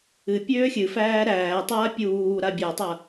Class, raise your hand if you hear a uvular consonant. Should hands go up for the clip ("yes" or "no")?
no